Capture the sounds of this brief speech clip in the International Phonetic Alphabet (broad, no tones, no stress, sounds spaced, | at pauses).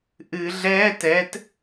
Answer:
ʔ ɨ ɮ ɛː t ɛ t